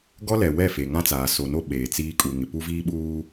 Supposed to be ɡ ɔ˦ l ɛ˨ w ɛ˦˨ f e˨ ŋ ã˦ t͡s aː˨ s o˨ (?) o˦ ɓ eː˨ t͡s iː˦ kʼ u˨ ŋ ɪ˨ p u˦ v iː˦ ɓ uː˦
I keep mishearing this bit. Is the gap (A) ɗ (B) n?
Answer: B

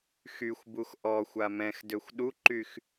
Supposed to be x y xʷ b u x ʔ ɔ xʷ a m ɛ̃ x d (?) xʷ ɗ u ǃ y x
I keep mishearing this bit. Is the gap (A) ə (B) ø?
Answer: B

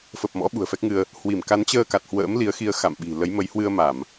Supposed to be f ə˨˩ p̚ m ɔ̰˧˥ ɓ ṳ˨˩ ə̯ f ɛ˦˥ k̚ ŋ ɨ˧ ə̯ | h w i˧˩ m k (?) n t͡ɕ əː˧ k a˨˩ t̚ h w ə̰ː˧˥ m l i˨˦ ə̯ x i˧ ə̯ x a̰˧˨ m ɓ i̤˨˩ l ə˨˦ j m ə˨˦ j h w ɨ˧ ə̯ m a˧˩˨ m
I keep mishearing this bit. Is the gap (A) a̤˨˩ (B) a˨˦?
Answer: B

